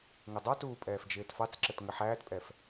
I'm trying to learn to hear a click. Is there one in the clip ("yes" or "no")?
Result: yes